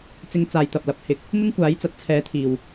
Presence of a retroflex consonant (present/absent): absent